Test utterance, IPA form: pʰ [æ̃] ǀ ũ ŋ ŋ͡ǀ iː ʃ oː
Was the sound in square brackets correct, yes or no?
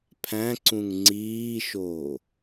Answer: yes